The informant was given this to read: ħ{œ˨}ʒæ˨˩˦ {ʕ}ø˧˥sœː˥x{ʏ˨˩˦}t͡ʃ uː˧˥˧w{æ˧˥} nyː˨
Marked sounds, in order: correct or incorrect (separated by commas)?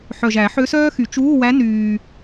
correct, incorrect, incorrect, correct